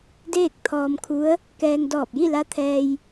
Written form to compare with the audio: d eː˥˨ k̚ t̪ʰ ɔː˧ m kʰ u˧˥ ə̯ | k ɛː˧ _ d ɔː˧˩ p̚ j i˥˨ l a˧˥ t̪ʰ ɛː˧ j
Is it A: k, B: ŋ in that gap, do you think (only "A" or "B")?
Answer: B